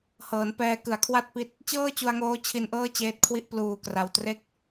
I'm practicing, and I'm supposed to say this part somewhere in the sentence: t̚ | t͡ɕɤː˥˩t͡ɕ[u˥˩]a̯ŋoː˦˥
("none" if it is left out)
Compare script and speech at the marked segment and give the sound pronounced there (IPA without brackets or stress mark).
u˧